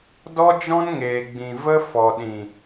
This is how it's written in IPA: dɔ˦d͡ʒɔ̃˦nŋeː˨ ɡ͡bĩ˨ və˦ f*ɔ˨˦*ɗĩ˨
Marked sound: incorrect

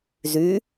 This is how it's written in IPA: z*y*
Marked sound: correct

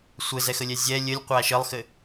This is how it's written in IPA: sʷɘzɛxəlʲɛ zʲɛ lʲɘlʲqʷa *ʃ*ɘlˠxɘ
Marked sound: correct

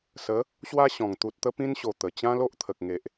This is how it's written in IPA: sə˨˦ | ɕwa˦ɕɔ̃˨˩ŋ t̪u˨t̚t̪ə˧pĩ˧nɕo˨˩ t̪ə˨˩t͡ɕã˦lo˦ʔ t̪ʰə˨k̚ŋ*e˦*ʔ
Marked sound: incorrect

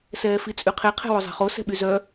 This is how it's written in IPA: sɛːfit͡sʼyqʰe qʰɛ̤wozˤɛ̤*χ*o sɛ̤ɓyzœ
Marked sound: correct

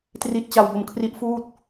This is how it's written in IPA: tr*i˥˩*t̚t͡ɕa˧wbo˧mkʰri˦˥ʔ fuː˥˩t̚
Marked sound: incorrect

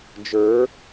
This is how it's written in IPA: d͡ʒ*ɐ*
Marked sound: incorrect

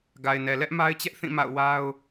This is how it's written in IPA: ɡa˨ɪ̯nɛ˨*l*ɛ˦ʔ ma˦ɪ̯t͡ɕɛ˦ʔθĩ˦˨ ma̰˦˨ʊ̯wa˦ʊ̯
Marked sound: correct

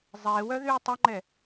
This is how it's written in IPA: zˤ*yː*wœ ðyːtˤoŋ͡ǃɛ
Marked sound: incorrect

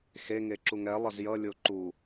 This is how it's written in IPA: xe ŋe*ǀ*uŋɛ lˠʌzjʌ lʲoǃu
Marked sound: incorrect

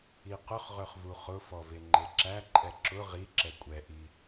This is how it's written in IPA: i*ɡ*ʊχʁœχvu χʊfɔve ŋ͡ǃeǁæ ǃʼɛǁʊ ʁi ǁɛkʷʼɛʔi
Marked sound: incorrect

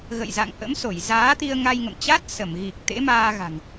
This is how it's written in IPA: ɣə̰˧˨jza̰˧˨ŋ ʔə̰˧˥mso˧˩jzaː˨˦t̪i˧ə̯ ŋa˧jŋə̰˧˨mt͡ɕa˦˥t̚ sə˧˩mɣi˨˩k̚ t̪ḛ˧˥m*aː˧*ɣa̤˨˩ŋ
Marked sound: correct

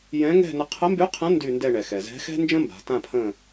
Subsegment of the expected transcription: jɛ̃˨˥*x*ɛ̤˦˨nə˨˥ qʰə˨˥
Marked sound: incorrect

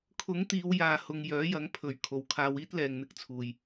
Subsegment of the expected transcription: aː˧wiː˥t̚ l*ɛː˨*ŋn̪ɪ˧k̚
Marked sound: correct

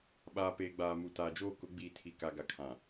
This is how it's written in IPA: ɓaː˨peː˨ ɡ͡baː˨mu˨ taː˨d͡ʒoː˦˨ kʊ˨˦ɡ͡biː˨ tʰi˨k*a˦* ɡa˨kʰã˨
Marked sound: incorrect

